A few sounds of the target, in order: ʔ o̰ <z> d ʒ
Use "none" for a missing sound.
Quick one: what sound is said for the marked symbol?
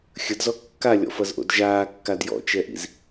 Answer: none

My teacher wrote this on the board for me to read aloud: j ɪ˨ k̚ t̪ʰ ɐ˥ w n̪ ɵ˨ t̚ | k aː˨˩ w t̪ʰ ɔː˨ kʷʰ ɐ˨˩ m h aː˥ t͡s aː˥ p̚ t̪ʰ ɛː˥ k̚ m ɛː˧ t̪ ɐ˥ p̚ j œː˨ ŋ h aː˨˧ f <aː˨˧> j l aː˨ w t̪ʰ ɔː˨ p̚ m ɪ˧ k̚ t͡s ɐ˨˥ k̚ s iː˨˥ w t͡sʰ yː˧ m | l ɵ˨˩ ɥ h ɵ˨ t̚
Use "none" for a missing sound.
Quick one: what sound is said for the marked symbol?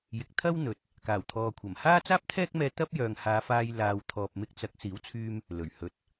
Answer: aː˧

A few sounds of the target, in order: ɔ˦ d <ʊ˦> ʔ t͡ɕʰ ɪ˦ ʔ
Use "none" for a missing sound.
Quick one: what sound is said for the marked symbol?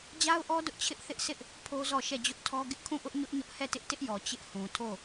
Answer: ʊ˦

